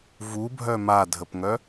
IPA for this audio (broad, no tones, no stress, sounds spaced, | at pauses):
v u bʱ œ m a dʱ ə p ŋ œ